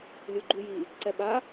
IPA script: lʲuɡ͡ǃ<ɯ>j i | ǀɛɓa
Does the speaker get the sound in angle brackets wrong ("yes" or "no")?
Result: yes